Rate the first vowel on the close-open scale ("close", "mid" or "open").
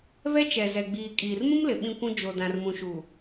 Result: mid